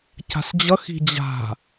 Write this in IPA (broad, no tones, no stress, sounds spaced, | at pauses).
c a̤ s d͡ʑ ʌ x i̤ d͡ʑ a̤